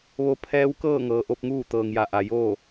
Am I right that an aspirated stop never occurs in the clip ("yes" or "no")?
no